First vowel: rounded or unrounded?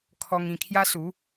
rounded